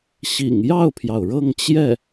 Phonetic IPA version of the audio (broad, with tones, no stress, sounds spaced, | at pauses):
ɕ ḭ˨˩ ŋ j ɑ˥˩ ʊ̯ pʰ j ɑ˩ ʊ̯ ɻ ɤ˥˧ ŋ t͡ɕ j ɛ˥˩